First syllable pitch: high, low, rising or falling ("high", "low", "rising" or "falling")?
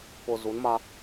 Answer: low